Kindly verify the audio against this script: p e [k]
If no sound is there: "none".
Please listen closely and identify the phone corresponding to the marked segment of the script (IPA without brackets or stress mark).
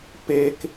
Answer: k